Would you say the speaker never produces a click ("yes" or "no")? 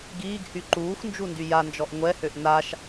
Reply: no